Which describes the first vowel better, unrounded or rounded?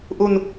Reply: rounded